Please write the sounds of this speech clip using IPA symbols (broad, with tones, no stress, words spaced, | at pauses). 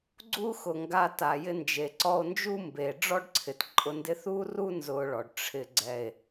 ɡ͡ǀu˦xʊ˨ŋɡa˧ ta˨jɪ˧ nd͡ʒe˨ǀɔ˧o̯nd͡ʒu˦ mbe˨ ɖ͡ʐɔ˦ɖǀʰɪ˨tǃʼʊ˧ndɪ˦ θu˦ru˦ nzʊ˧ɭɔ˨ɖ ʈ͡ʂʰɪ˨ɡ͡ǀɛ˨e̯